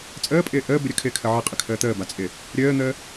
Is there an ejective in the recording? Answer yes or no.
yes